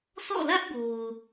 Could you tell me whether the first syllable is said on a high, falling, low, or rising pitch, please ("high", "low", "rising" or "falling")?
falling